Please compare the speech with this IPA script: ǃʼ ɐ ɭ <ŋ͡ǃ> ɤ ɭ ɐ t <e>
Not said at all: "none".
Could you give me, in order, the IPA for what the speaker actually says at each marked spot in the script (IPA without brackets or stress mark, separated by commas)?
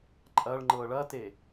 ŋ͡ǃ, e